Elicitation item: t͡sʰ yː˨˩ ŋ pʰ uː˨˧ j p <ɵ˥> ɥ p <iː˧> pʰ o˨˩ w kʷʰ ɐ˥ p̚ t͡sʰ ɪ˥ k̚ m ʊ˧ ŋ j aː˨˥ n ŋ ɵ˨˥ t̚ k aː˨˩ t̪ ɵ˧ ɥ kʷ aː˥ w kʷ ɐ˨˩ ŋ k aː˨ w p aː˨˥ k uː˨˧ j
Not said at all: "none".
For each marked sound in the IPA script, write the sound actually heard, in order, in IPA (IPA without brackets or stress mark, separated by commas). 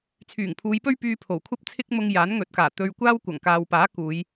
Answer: ɵ˥, yː˧